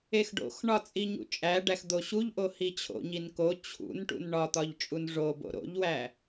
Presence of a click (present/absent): absent